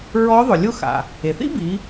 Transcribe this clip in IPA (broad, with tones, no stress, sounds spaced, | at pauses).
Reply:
ɹ ɔ˧˥ ðˤ ʊ˩ lʲ ʊ˧ x a̰˩ | e˩ θ ḭ˥ b i˩˧